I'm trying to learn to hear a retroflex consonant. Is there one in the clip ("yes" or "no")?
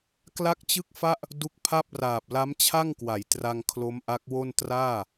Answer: no